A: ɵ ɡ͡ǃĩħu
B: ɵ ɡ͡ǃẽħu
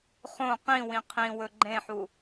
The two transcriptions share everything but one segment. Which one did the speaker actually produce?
B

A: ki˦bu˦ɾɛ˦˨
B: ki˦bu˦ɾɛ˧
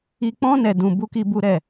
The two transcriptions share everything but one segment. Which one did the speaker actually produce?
A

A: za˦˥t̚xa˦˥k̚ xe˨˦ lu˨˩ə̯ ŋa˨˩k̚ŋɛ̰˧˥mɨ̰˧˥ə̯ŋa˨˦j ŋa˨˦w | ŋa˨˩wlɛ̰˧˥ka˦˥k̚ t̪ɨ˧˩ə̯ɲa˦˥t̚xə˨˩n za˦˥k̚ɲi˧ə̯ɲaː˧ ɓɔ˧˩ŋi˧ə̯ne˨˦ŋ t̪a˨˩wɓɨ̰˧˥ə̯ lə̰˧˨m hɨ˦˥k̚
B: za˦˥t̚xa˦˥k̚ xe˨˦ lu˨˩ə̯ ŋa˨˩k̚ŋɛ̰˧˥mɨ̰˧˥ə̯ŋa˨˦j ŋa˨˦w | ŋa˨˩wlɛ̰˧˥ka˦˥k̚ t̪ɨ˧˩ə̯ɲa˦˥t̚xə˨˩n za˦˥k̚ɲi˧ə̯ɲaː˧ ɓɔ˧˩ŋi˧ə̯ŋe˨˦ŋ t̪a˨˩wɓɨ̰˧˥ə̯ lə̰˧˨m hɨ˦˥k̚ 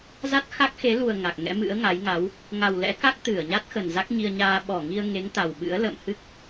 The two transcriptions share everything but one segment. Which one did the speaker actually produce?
B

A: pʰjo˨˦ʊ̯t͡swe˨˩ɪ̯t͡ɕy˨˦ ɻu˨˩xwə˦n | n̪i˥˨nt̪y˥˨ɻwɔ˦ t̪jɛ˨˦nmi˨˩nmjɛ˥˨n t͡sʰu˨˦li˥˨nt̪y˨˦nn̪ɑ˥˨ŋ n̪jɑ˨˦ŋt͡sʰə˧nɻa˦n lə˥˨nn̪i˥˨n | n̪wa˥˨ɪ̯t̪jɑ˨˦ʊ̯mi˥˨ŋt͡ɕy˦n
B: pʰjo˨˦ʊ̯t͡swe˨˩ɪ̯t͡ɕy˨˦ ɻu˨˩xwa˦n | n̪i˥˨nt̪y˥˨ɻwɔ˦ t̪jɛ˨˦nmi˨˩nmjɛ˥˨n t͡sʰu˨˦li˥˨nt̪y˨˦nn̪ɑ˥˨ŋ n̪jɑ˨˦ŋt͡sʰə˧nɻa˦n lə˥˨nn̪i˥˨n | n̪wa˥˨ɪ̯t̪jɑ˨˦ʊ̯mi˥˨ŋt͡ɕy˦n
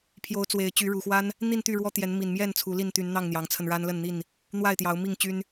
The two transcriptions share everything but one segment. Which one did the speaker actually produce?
B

